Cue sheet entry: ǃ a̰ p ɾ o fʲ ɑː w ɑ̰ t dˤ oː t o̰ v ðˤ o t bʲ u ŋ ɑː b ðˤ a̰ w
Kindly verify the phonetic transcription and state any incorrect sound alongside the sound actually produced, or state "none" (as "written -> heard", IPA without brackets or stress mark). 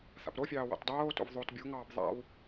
ǃ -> θ